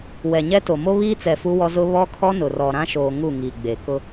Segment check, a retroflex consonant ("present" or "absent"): absent